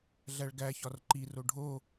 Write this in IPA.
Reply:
ɮ æ ɭ ɡ æ ç ɒ r ǃ i r o ɖʱ o

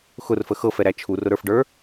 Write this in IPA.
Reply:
x ʊ r f ə x ɤ f ɛ ɾ æ t͡ʃʰ u r ʊ ɾ ə˞ f ɖ ə˞

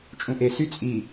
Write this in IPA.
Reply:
t͡ʃʼ ũ ʔ e s y t͡sʼ i

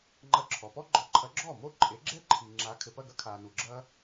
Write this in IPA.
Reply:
ŋ͡ǃ ɐ˧ ǁʰ ɔ˩ p ɔ˥ ɡ͡ǃ ɔ˩˥ ǃʰ ɐ˩˥ ɡ͡ǁ ɔː˥˩ m o˥˩ ǃʼ e˩˥ ɡ͡ǁ ɛ˥ ǃʰ i˩ ŋ͡ǁ a˩˥ kʰ ɘ˩ p ɐ˥˩ ɡ ɐ˥ kʰ aː˩ n u˩ ɡ͡ǁ ɐː˥

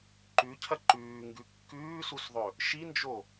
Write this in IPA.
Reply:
ǃ ʉ cʰ ɐ ǃ ʉː ŋ ɡ ʉ kː ʉː s u s ðˤ ɵ | ʃ i n d͡ʒ o

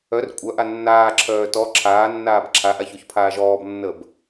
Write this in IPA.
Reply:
œ r kʷʼ œ ʔ a nː aː ǁʰ œː t ɔ ǁʰ aː nː aː b ǁʰ a ʔ a ç o ç pʰ aː ʒ ɔː b nː əː b

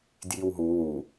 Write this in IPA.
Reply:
d j i w ɦ u w u

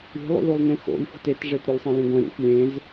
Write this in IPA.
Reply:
i̤ lˠ ṵ l u lˠ n ẽ x o̰ lʲ f o̤ t e t ʐ e t ɾ u lʲ sˤ ẽ l ĩ ɡʷ ẽ ɾ ṵ xʷ lʲ ẽ z

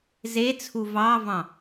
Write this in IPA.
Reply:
z e t͡sʰ u v ɑ v ɑ̃

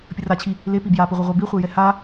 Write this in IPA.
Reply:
pʲ ə r a t͡ɕʰ i | l e p i b j a p i ʁʷ œ ʁʷ œ b i χʷ e j ɛ h a

